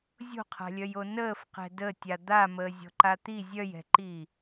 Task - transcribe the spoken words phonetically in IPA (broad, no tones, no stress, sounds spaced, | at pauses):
zʲ o̤ qʰ a̤ lʲ œ j o n əː f q ɛ̤ d ə tʲ a d̪ a m əː zʲ ɔ̤ ǃ a t̪ i zʲ œ j ɛ̤ ǃ iː